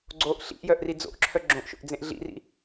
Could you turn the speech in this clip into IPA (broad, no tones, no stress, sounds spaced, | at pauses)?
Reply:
ɡ͡ǀ o ʔ ɬ ḭ ʔ j œ ʔ r i d͡z o̰ ʔ ǁʰ œ ɡ͡ǁ õ ʔ ʃ o̰ ʔ d͡z ẽ ʔ ɮ ḭ r ḭ